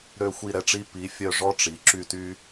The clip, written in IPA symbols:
ɾø˦˨xʷi˦˨ɾɛ˦ʈ͡ʂi˦ pi˨˦ fʲœ˦˨ʐɔ˦ʈ͡ʂi˨˦ ǁy˦˨ty˦

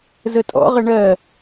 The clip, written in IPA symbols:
zətʼɔ̰ʁə ɳɜ

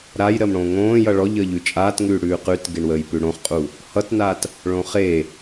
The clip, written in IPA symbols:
ɾaj ɾəːmɽõːŋõː jʌɭɔʎəː ʎʉt͡ʃʼaːtŋʉː ɽʉːqʉtɡeɳwəːj pʉɽõχqʼu | hʌtnat | ɭõχe

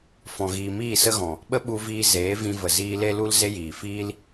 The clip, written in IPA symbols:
fɔ̃˨ɣiː˨miː˦˨ sə˦ɣɔ̃˨ | ɓə˦ɓu˧viː˧ zeː˨˦vĩ˧və˨ ziː˧le˦ lu˦lze˦jiː˨ fiː˦l

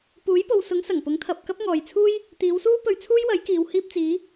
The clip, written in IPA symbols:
puː˨˥jpo˨wsʊ˨˥ŋ sɐ˨˩ŋpʊ˨˥ŋt̪ʰɐ˨p̚ kɐ˥p̚ŋɔː˨jt͡sʰuː˥j | t̪iː˨˧wsuː˥ pɵ˧ɥt͡sʰuː˥jwɐ˨˥j kiː˨w hiː˧p̚t͡siː˨˧

